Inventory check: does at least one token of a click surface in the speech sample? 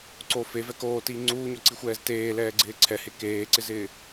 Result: yes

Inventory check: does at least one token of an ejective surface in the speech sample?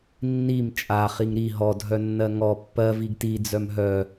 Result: yes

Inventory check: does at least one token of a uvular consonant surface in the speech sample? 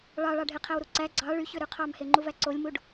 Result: yes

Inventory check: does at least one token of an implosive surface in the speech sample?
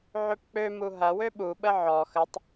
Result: yes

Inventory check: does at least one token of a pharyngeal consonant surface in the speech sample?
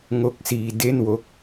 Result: no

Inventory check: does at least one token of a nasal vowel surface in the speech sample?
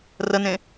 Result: yes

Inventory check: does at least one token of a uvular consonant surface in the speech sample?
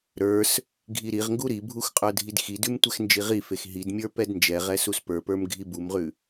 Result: yes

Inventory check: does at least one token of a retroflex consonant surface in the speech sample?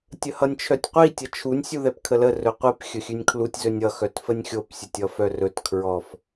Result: no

